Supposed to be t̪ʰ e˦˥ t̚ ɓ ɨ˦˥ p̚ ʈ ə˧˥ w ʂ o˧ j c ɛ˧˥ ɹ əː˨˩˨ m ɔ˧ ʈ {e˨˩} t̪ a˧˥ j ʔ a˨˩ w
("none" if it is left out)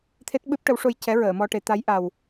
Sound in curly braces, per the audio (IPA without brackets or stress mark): e˨˩˦